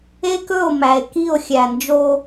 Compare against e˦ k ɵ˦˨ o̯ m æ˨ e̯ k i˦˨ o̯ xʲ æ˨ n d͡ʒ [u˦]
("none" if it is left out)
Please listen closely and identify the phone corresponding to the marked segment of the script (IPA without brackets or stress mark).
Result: o˦